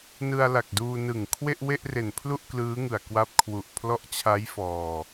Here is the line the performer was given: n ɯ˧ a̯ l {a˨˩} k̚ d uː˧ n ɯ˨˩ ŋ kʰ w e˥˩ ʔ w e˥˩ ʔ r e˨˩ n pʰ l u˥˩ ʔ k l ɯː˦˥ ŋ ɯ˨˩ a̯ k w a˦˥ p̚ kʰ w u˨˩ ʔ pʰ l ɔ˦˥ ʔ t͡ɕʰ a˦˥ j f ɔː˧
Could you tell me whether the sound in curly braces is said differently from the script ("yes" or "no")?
no